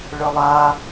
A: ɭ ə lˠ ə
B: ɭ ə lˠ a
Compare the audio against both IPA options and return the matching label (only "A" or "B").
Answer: B